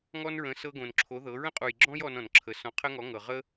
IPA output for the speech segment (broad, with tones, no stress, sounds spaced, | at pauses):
ŋ ɔ˥ n ɹ ə̃˧˥ s ɤ˥ ɡ õ˧ n ǁʰ o˧˥ ð ɤ˧˥ ɹ ə̃˥ qʼ u˧ j ɡ͡ǁ ɔ̃˥ j ɔ˥ n ɔ̃˧ n ǁʰ ə˧˥ s ɔ̃˧˥ qʰ ə˥ ŋ ɔ˧˥ ŋ ɤ˧ ʁ ə˥